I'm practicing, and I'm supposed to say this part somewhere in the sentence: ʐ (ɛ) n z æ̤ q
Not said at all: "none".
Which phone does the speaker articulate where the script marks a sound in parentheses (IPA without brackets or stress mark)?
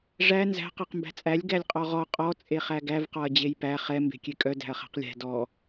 æ